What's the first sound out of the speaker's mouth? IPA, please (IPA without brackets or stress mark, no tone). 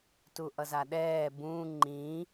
t